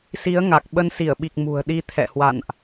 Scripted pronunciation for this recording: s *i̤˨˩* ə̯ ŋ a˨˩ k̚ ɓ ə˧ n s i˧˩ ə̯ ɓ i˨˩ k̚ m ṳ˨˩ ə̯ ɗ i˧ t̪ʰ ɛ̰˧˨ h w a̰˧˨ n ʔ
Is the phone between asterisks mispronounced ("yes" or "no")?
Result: yes